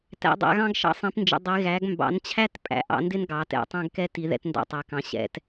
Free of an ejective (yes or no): no